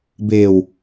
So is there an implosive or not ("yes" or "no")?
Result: no